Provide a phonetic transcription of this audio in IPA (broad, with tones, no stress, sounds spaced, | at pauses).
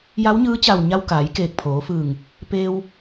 j a˧˥ w ɲ ɯː˧˥ t͡ɕ a˧˩ w ɲ a˧ w k aː˩˧ j k eː˧˩ k̚ pʰ oː˩˧ f ɯː˧˩ ŋ | p eː˧ w